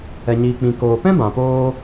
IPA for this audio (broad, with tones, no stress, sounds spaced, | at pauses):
ɛ˨ ɲ iː˨ k͡p ĩ˨ k oː˨ p ɛ̃˦ b ã˨ p oː˧